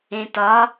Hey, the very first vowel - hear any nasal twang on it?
yes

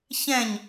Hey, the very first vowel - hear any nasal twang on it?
yes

